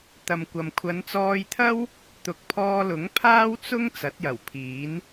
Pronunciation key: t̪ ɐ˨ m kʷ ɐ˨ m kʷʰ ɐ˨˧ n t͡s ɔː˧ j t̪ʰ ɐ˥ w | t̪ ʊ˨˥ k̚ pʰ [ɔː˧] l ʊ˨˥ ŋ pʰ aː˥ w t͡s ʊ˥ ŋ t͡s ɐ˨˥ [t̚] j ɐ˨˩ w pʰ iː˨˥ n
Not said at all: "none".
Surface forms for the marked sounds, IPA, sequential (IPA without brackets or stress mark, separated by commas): ɔː˧, t̚